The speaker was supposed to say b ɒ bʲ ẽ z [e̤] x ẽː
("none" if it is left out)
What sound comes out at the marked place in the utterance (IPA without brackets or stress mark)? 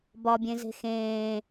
e̤